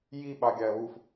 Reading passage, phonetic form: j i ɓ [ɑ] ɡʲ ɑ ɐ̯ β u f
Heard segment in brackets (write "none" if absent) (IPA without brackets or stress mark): ɑ